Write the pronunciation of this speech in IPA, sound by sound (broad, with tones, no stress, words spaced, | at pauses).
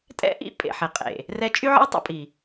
tʼɛ̰˦ʔḭ˦ pʼḛ˨ħɪ˨qʼḛ˨ | rɛ˧t͡ʃʼy˦ʕə̰˦w tˤə̰˦pʼi˨